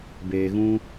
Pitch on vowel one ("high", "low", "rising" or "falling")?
low